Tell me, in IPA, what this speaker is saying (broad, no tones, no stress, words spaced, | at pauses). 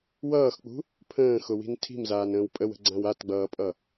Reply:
wʌːxk͡pṳ | pʰə̃ːxʊwi̤n tʰi̤mzaːnə̃ːw pʼəwə̤ɡ͡ǀãw atɡ͡bʌːpʼʌ